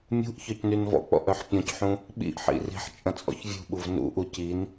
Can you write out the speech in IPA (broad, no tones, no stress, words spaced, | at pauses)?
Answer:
mʲṳʔ çœcnynvɔ̰k͡pɔ̰ ʔœħpʲɔ̃cħũ | ɓḭʔħḭ ri̤ħt͡ʃʼɐ̃ t͡sʼɔ̰çvʲṳɓuv nṵʔu cin